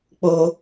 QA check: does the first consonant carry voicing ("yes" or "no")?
no